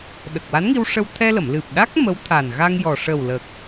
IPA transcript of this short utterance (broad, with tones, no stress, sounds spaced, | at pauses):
ɗ ə˨˩ k̚ w a˧˥ n ŋ i˧ w ʂ ə˧ w t̪ʰ ɛ˧ l ə˨˩˨ m l ɨ˨˩ p̚ ɗ a˦˥ k̚ m ə˧˥ w t̪ʰ a˨˩ n ɣ a˧ ŋ j ɔ˨˩ ʂ ə˨˩ w l ə˨˩ k̚